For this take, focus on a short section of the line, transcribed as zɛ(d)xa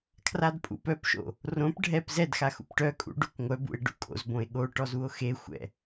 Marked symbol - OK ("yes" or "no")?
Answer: yes